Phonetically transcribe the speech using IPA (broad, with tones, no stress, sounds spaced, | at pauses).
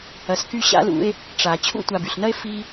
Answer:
ɐ˨ s k y˦ ɕ a̰˥ l ṵ˦ e̯ | ʈ͡ʂ a˨ t͡ɕʰ ṵ˦ tʷ a˨ b y˩ ɬ n ɐ˦ e̯ f i˦